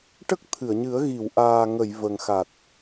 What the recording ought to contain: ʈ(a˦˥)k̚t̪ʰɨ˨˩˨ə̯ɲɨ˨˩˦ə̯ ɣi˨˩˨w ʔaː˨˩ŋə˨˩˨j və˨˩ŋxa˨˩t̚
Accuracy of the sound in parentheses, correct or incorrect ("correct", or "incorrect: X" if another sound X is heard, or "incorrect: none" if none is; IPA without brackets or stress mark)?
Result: incorrect: ə˦˥